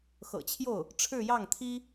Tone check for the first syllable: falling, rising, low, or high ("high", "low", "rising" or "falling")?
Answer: low